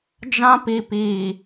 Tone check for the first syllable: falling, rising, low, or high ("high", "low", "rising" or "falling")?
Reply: high